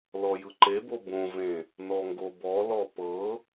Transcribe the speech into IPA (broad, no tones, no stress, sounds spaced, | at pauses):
l ɔ j ɯ ǃ e b o b õ v ẽ | n ɔ ŋ ɡ o b ɔ l ɔ p ɤ